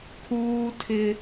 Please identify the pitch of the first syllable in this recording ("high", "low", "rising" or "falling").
high